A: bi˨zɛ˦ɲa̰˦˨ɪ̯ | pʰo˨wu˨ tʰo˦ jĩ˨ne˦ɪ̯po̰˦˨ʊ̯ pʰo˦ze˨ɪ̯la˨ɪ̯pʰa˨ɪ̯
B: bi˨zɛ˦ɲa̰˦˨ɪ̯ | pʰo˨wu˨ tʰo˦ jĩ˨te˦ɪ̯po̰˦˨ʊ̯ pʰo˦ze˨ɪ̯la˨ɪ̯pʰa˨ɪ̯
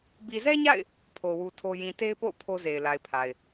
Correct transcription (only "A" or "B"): B